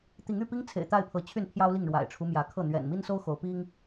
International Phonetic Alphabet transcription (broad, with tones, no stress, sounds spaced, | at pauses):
t̪ i˨˦ ŋ y˥˨ p i˦ ŋ t͡sʰ ḛ˨˩ ɪ̯ t̪ a˥˨ ɪ̯ pʰ ɤ˨˦ t͡ɕʰ y˥˨ n pʰ j ɑ˦ ʊ̯ l i˥˨ ŋ ɻ w a̰˨˩ ɪ̯ ʈ͡ʂʰ u˦ m j ä˨˦ kʰ ɤ˥˨ n̪ ɥ ɛ̰˨˩ n m i˦ n s o˦ ʊ̯ x o˨˦ ʊ̯ p i˦ ŋ